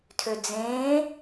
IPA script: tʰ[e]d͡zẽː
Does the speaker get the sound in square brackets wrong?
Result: yes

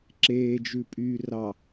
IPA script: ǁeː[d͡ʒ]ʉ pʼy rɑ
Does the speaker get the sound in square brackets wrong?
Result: no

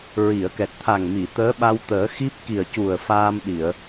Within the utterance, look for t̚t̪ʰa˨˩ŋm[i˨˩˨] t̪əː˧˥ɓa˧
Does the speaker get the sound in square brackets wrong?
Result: no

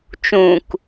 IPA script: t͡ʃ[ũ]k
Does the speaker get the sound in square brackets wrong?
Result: no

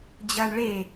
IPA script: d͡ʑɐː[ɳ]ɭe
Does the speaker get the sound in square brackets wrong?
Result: no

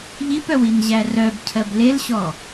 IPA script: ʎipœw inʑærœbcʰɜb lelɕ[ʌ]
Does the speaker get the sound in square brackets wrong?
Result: yes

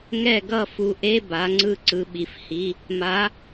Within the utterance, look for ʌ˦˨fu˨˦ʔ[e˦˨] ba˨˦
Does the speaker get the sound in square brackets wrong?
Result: yes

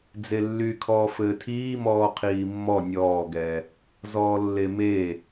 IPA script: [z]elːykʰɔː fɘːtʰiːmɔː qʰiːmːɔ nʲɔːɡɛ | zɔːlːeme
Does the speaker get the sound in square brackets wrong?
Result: yes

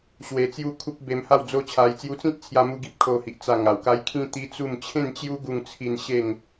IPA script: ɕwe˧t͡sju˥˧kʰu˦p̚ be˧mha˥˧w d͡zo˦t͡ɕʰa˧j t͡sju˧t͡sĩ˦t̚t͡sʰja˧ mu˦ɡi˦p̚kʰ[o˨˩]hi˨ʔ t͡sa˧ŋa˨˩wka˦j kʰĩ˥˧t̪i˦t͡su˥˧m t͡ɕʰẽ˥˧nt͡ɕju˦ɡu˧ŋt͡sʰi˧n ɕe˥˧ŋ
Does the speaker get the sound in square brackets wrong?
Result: yes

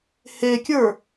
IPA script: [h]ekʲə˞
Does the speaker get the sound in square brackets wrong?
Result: no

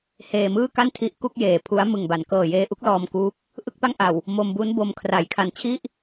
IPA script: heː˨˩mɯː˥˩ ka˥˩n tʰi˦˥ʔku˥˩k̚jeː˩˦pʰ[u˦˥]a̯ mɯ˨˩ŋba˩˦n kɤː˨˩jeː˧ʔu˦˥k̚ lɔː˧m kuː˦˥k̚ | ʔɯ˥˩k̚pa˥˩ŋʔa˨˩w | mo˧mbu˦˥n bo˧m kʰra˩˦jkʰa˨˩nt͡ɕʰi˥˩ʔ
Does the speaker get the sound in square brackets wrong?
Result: no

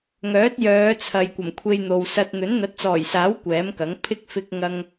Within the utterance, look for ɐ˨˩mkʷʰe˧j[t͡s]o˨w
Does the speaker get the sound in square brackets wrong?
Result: yes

